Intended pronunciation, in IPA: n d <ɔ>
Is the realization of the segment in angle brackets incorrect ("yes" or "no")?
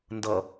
yes